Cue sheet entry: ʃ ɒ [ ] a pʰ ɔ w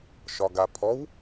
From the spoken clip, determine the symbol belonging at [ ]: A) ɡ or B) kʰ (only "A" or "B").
A